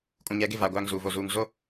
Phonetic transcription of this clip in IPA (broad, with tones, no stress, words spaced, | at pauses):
kʼũ˨ɲɛ˨˦ɡɪ˦˨vaː˨ ɡʷaː˦ŋzuː˨vo˨ zuː˨ŋ zo˦